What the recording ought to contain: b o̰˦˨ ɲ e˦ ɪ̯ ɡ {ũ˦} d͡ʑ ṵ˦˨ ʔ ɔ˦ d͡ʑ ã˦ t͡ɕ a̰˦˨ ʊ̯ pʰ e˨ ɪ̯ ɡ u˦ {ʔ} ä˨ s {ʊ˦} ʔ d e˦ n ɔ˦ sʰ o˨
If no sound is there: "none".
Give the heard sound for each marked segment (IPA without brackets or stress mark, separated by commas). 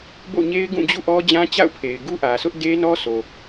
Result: ũ˦˨, ʔ, ʊ˦